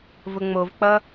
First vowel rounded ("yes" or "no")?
yes